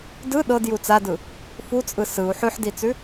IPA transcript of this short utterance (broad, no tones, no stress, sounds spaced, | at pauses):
d ɯ ɗ ɤ d j u t͡s a d ɯ | f u t͡sʼ ɯ s ɯ u̯ ħ ʉ ħ d i t͡s ʉ